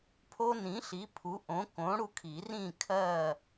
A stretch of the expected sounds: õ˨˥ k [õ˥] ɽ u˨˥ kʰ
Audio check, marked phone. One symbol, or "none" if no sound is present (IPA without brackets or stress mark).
õ˨˥